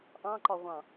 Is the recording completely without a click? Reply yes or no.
no